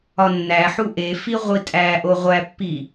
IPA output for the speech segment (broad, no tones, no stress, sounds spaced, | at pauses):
ɒ nː æ ħ u ʔ e f i ʁʷ i tʼ æ ʔ o ʁʷ æ pː i